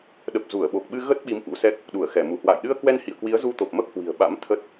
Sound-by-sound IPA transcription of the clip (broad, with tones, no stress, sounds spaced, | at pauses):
ɗ ə˨˩ p̚ z u˧˩ ə̯ ɓ o˨˩ k̚ ɓ ɨ˧ ɣ ə˦˥ t̚ ɓ i˨˦ m ʔ ṵ˧˥ s ɛ˦˥ k̚ | ɗ u˧˩ ə̯ x ɛ˧˩ m u˧˩ h w a̰ː˧˨ j ɗ ɨ˧ ə̯ k w ɛ˧ n h ḭ˧˨ ə̯ k w i˨˦ ə̯ z u˧ t̪ o˨˩ p̚ m ə˦˥ p̚ h w i̤˨˩ ə̯ ɓ a̰˧˥ m t̪ʰ ə˦˥ t̚